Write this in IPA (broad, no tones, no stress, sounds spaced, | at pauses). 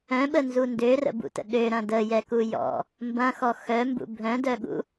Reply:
œ̃ ɓ ə n z u n d ø r ə̰ b ṵ t ə̰ ɗ ø ɾ ɐ̃ d ə j ɛ k u j ɔ̰ | m b ɐ̃ x ɔ x œ m b ṵ bʱ œ̃ d œ ɠ ṵ